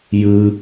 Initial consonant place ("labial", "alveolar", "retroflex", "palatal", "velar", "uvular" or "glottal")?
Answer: palatal